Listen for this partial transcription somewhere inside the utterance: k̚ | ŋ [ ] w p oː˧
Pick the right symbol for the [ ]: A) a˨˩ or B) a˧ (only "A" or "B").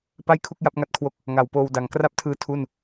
A